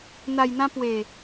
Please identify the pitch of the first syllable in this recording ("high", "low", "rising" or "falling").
low